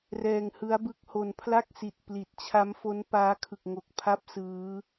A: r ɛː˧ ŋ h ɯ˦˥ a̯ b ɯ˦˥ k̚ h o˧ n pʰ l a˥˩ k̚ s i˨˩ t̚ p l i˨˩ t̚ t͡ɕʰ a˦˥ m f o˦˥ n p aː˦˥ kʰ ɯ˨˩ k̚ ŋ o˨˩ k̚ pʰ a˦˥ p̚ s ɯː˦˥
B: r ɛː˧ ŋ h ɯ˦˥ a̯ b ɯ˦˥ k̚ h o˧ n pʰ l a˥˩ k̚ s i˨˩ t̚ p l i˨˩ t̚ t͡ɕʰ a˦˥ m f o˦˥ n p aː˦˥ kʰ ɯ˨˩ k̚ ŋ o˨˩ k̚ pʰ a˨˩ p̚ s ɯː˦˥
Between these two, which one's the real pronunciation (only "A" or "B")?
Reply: A